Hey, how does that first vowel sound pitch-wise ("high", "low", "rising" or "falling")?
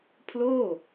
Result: falling